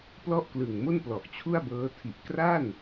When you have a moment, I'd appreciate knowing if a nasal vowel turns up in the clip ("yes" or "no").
no